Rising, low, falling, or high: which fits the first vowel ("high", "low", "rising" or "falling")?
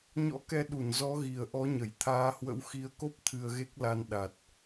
rising